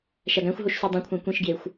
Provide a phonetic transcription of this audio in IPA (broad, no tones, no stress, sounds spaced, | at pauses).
ʃ æ ɡ æ̃ xʷ ɦ o ʃ s y dˤ ĩ kʷʰ æ̃ kʷ ĩ ʃ ɡ j e xʷ